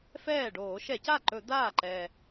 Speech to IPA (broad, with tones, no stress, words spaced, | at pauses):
fɛː˥˩ ɖoː˧˩˧ʃɛ˧˩˧ca˥˩ǃɵ˧˩˧ d̪aː˥˩ǃɛ˨˩